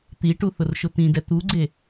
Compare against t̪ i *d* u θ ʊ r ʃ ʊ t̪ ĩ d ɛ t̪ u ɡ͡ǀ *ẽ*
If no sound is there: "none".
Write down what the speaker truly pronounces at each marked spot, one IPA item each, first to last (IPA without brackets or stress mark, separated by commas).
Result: ʈ, e